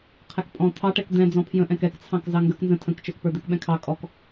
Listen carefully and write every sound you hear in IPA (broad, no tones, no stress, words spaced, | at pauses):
qʰɛkpʼɔ̃ t̪ʰɑʈɛk d̪ɛ̃ d͡zɔ̃pʰjə̃ʔɛ̃k ɛkt͡sʰɑ̃k zɑŋɡək nzə̃ tʰə̃kt͡ʃə˞k pə˞d̪ɛkɓɛ̃kʰɑ kʼɔk